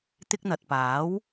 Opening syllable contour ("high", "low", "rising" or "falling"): high